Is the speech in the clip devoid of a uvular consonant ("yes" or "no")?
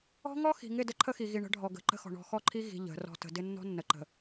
yes